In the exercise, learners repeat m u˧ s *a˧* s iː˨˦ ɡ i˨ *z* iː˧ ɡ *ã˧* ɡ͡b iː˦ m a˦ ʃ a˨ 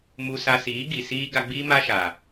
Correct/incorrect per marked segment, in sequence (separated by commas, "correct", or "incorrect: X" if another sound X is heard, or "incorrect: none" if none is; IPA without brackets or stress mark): correct, incorrect: s, incorrect: a˧